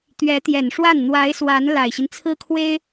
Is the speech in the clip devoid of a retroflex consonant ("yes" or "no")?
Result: no